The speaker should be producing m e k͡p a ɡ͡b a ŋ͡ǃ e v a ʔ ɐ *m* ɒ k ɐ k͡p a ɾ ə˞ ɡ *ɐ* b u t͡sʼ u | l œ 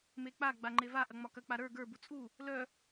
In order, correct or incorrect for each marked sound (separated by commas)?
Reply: incorrect, incorrect